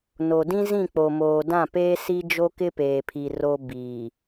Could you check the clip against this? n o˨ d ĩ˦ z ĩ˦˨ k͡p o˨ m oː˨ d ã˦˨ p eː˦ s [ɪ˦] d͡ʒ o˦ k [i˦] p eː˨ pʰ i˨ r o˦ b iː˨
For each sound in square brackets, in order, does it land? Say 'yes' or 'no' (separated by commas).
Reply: no, no